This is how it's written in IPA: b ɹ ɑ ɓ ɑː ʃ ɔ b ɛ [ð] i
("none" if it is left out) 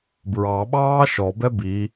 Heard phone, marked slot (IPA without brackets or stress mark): b